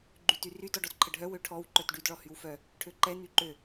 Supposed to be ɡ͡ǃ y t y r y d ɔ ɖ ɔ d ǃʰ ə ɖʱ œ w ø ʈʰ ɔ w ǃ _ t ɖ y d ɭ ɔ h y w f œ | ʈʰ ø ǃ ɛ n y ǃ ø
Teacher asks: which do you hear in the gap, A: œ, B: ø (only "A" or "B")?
A